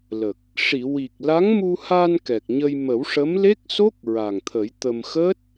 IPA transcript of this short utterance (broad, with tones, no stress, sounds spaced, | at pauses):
l ə˨˩ k̚ | ʂ i˨˩˨ w i˨˩ k̚ l a˧˥ ŋ m u˧ h a˧ n k ɛ˨˩ k̚ ɲ ə˧ j m ə˨˩˦ w ʂ ə˧˥ m l e˦˥ k̚ s o˦˥ k̚ ɹ a˨˩ ŋ t̪ʰ ə˨˩˦ j t̪ ə˧ m x əː˦˥ t̚